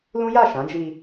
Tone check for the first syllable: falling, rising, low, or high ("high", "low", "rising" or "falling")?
high